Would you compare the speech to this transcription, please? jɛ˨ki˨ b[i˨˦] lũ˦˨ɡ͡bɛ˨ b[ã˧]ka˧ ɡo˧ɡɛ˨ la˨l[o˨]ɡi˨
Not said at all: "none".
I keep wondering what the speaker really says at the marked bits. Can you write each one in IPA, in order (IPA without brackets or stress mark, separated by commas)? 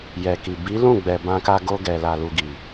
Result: i˨˦, ã˧, u˨